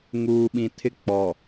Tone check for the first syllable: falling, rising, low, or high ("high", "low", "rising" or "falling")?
low